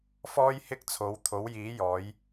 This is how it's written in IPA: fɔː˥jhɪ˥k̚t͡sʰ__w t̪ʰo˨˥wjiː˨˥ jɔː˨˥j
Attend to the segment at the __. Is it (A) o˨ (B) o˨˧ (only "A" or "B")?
B